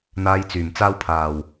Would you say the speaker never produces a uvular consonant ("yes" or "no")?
yes